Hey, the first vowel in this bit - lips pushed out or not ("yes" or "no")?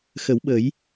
no